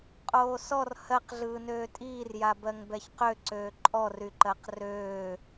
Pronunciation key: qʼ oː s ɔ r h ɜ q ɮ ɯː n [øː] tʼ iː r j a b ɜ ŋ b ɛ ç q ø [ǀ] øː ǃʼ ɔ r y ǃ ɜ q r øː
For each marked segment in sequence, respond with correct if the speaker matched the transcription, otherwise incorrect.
correct, correct

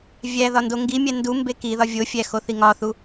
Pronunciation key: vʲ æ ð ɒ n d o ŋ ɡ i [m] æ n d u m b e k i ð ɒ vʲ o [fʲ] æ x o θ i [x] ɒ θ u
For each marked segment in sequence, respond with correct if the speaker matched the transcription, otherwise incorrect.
incorrect, correct, incorrect

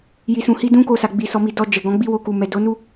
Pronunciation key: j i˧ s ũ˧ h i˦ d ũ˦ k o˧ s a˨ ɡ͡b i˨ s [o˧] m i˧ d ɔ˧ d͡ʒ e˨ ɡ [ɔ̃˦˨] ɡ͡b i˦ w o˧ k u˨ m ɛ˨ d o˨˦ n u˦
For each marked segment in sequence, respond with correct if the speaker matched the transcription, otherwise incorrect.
incorrect, incorrect

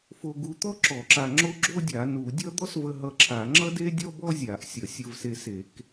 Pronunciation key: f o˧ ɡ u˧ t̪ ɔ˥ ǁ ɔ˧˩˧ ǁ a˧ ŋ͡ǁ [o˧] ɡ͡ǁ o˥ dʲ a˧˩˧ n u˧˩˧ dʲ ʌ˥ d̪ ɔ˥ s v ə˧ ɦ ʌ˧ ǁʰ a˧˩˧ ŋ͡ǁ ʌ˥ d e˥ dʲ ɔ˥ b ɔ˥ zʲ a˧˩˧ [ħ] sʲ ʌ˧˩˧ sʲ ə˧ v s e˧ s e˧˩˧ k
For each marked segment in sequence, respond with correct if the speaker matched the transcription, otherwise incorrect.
incorrect, incorrect

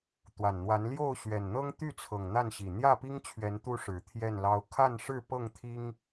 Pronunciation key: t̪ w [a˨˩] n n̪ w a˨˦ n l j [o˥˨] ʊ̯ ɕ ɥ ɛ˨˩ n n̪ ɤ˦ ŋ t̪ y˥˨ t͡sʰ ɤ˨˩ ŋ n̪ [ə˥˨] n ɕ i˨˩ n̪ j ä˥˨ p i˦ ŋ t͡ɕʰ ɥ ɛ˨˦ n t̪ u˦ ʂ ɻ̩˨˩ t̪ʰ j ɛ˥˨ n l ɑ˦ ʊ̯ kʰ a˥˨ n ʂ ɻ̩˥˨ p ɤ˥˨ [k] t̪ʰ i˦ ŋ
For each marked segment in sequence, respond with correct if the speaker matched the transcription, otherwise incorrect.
correct, correct, incorrect, incorrect

